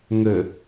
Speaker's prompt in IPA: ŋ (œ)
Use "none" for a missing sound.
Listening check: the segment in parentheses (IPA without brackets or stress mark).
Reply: ə